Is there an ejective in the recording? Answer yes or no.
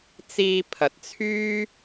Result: no